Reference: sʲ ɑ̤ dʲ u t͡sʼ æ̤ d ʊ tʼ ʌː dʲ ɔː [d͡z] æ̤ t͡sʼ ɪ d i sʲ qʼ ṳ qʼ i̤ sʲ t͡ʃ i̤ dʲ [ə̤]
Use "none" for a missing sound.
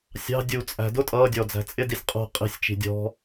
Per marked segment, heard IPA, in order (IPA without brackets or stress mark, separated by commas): d͡z, ɔ̤